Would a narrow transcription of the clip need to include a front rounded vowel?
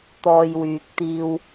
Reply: yes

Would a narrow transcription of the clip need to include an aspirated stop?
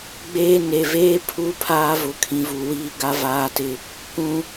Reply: yes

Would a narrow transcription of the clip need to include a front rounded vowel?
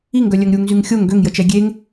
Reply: yes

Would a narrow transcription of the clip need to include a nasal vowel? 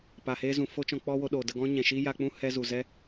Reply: yes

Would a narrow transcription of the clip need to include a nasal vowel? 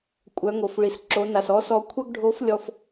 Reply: no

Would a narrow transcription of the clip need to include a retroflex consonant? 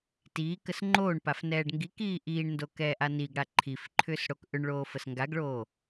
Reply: yes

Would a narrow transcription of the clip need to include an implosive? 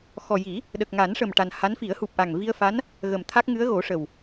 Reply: yes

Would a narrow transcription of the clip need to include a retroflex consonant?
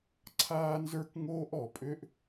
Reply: no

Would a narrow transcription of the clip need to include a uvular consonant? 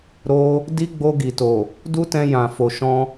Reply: no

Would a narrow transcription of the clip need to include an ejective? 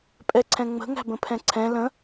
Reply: yes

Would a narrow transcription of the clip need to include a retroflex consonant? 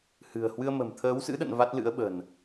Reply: no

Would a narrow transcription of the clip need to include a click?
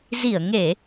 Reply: no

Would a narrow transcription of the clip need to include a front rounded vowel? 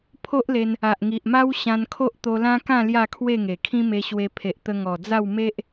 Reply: no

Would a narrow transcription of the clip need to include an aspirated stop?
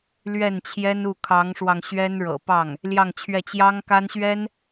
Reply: yes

